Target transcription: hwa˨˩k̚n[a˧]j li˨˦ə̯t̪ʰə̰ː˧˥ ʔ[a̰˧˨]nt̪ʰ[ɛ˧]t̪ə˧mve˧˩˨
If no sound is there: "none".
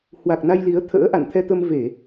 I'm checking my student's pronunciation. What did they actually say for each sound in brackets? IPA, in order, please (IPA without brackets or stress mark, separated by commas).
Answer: a˧, a̰˧˨, ɛ˧